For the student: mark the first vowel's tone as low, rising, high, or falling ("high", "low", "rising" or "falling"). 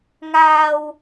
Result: high